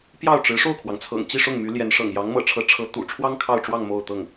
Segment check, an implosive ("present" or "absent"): absent